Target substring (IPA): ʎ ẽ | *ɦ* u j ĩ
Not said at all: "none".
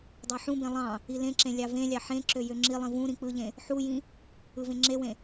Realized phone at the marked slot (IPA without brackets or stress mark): ħ